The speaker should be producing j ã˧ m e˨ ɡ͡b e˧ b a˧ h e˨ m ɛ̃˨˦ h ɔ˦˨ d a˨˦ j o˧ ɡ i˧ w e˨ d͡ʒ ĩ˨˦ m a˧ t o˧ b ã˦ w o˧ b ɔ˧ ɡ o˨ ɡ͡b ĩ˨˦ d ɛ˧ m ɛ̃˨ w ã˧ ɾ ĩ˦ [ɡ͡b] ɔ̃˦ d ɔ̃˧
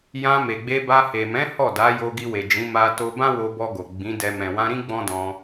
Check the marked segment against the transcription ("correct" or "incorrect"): correct